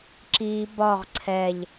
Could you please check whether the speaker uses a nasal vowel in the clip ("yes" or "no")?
no